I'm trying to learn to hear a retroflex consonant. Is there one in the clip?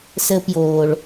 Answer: yes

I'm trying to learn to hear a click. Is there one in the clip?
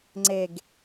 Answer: yes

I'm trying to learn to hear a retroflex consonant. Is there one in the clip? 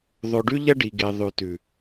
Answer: yes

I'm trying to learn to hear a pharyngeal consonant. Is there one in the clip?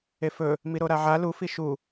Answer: yes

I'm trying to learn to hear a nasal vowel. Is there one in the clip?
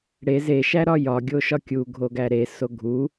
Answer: no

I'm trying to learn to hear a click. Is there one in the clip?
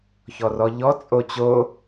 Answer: no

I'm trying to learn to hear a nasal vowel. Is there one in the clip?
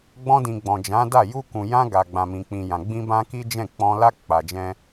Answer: yes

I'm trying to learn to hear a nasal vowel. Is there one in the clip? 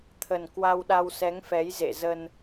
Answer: no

